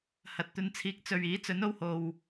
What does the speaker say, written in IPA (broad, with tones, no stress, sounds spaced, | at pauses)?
h ɐ˨ t̚ t̪ ɵ˧ n t͡sʰ iː˧ k̚ t͡s ɵ˨ ɥ iː˨˥ t͡s ɵ˨˥ n o˧ w h o˨ w